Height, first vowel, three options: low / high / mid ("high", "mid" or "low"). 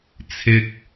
high